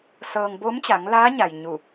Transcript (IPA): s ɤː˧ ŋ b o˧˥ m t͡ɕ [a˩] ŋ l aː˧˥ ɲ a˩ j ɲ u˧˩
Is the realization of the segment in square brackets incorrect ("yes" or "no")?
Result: yes